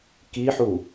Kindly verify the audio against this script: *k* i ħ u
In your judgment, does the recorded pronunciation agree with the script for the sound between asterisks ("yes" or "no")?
yes